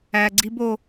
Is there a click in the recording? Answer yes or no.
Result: yes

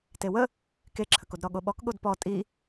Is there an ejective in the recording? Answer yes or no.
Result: yes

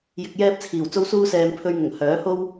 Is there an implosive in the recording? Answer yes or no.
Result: no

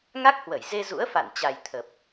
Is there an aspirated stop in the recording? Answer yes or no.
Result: yes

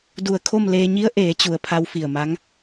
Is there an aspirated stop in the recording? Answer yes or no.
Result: yes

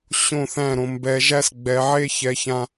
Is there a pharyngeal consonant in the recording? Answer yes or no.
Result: yes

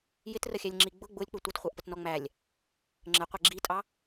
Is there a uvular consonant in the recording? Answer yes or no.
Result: yes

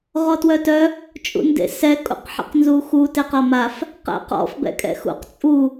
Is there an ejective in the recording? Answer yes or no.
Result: yes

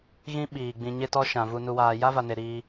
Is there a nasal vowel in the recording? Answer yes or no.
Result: yes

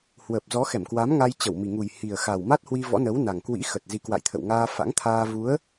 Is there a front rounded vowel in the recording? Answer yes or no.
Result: no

